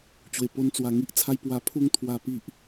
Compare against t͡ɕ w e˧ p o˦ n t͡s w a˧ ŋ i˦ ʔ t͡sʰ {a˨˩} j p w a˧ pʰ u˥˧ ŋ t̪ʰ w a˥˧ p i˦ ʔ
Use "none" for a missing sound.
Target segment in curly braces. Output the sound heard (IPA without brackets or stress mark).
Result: a˦